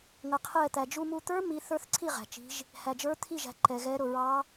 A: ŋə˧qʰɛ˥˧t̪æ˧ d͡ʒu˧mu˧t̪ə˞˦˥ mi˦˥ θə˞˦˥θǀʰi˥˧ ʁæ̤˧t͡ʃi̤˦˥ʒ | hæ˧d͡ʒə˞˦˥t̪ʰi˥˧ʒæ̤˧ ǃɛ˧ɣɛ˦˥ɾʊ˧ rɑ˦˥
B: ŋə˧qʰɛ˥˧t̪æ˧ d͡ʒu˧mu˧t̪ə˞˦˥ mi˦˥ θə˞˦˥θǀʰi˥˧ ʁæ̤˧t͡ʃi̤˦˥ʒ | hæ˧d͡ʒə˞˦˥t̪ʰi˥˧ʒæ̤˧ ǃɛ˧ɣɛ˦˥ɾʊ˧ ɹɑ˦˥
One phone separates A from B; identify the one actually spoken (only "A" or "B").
B